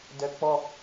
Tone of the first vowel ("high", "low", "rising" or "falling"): high